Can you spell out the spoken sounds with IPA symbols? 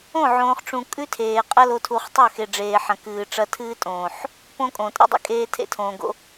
õ˦˨ ʕ õː˨ χ ʈ͡ʂ ũ˨ kʼ ʉ˦ tʰ eː˨ qʼ ɐ˦ l o˨ tʰ u˨ χ tˤ ɵ˦˨ x e˨ ɖ͡ʐ eː˨ ħ ɐ̃˨ k ɨː˨ ʈ͡ʂ ɐ˦ tʰ ɨː˦ tʼ õː˨ ħ | p õ˦ kʼ õ˨ tʼ ḛ˦ dˤ ḭ˨ kʼ eː˦ tʰ ḛ˦ tʰ õː˨ ɡ o̰˦

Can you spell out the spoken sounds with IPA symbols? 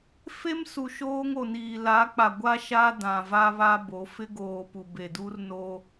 f e˦ m s u˨ ʃ oː˦ ŋ o˨ n iː˨ l a˨˦ k͡p a˨ ɡʷ a˦ ʃ a˦ d ã˨ v a˦ β a˦ b o˨˦ f ɪ˦ ɡ oː˨ p u˨ b e˨ d u˦ r n o˦

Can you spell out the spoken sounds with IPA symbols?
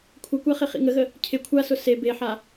kʷʰ ə kʷ a χ ɪ χ ḭ ŋ ə ɣ ə | cʰ ɪ kʷʰ a s ʊ s e b e ħ a

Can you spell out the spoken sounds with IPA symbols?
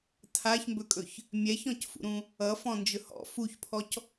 tʰ a ç m b ɵ kʼ ɵ ç | mʲ ɛ ç ɔ̃ c f ṵ ɾ ũ | ʌ f ɔ̃ n d͡ʒ ɵ h ɔ̰ f u ç pʰ ɔ c

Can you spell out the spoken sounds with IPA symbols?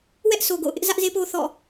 w ɛ˦ ʔ s o˨ ɡ o̰˦˨ ʊ̯ ʔ ɪ˦ ʔ z ä˦ ʔ z e˦ p o˦ θ ɔ̰˦˨

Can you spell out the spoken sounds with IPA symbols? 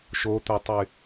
ʃ o t̪ œ tˤ y

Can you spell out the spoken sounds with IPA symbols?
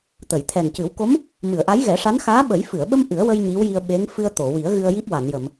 t̪ ə˨˩˨ j t̪ʰ ɛ˨˩ n c ɨ˨˩˦ w k o˧˥ m | m ɨ˨˩˨ ə̯ ʔ a˧˥ j ɣ ɛ˨˩˦ ʂ a˧˥ n x aː˧˥ ɓ ə˨˩˦ j f ɨ˨˩˨ ə̯ ɓ ə˧ m ʔ ɨ˨˩˦ ə̯ w ə˧ j ɲ i˧˥ w j i˧ ə̯ ɓ e˧˥ ŋ f ɨ˧ ə̯ t̪ o˨˩˨ w i˨˩˦ ə̯ ɣ ɨ˧ ə̯ j i˦˥ p̚ w a˨˩˨ n j ə˨˩˨ m

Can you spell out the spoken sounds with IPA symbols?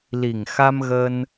l i˨˩ ŋ x a˧ m ɣ ə˧ n

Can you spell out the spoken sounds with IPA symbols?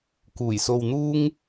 k uː˨˩ j s o˧ w n̪ uː˥ ŋ

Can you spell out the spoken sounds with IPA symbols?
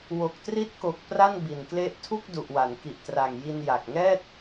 w o˨˩ k̚ t r i˦˥ t̚ k o˨˩ k̚ p r a˥˩ n b i˨˩ n k l e˦˥ ʔ tʰ u˥˩ k̚ d u˨˩ ʔ w a˩˦ n k i˨˩ ʔ t r a˨˩ ŋ j i˧ n j a˨˩ k̚ ŋ ɛː˥˩ t̚

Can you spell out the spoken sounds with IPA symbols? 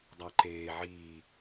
dˤ a ǃ eː ʕ iː

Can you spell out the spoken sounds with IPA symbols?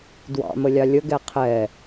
d w ɑ̰ m ə lʲ ɑ lʲ ə ɡ ɛ qʰ ɛ

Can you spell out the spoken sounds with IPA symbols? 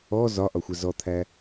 ɔ z ɒ ʔ ɒ xʷ ɛ z ɔ t̪ʰ æ

